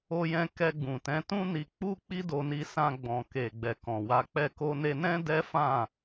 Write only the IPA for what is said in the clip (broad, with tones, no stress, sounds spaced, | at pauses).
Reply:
o˧ j ɛ̃˧ k ɛ˧ ɡ͡b ũ˨ t ɛ̃˨˦ t ũ˦ n i˧ k͡p u˦ k͡p i˦ d o˧ n i˧ s ã˧ ɡ͡b ɔ̃˨ k e˨ ɡ͡b ɛ˨ k ɔ̃˨ w a˨˦ k͡p ɛ˦˨ k o˧ n e˧ n ɛ̃˦ d ɛ˦ f ã˦˨